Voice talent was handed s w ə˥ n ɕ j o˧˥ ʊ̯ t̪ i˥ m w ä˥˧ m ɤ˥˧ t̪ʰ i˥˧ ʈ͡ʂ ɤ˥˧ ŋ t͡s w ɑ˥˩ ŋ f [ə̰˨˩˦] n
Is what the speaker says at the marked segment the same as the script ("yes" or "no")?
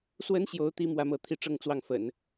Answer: yes